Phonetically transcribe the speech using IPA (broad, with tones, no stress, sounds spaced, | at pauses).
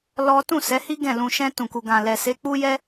l ɔ˦ t ũ˦˨ s ɛ˨˦ h i˦ ɡ ɛ̃˦˨ l ũ˧ ʃ ɛ̃˧ t ũ˨ k u˨ ɡ ã˨ l ɛ˨ s e˨˦ k͡p u˦ j ɛ˦